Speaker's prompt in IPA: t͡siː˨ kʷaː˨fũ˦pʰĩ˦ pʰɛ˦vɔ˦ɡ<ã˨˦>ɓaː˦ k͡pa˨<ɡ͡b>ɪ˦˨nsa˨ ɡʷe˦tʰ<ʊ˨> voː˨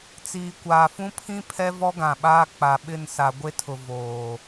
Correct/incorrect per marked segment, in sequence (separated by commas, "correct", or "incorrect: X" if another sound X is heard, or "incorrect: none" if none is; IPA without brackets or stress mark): incorrect: ã˨, incorrect: ɓ, correct